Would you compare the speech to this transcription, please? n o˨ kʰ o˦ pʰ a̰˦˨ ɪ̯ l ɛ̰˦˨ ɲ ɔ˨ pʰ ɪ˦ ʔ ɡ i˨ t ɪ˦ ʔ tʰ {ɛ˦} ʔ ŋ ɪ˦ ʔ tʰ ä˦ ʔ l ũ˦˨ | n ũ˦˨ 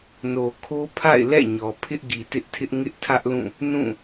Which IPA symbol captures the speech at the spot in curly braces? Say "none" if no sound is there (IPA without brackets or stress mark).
ɪ˦